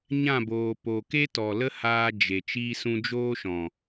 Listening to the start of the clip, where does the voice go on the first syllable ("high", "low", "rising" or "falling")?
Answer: falling